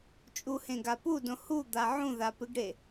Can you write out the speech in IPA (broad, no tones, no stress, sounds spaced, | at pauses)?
t͡ʃʼ u h ẽ ɡ a p u d õ h u d̪ a ʕ ũ ð a p ɨ ɡ ɽ e